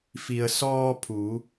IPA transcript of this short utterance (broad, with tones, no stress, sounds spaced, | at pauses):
f i˩ ə̯ s ɔː˧ pʰ u˩˧